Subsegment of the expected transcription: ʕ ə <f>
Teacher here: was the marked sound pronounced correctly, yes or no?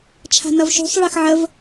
no